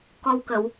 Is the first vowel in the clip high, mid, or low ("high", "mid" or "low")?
mid